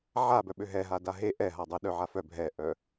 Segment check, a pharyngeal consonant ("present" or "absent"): present